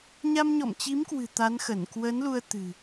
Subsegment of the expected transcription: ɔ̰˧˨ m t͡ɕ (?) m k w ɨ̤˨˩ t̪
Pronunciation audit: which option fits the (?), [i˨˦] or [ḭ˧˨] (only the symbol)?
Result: i˨˦